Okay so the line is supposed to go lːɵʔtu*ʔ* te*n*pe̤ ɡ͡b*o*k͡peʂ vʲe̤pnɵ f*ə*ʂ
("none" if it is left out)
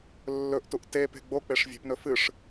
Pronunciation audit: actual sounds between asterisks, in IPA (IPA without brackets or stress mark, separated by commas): ʔ, none, o, ɨ